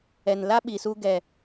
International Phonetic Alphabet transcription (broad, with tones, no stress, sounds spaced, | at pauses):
ɛ˨ n l a˦ ɓ i˨ s u˧ ɡ ɛ˨